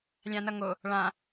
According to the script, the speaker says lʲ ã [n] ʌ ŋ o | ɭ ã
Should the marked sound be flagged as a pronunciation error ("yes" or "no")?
no